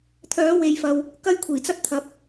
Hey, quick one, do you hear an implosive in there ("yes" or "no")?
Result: no